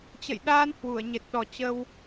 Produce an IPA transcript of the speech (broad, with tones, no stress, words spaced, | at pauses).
t͡ɕə̰˧˨jɗaː˧n hwu˧˩ə̯ɲe˨˩t̚ɗɔ˨˩ t͡ɕə˧w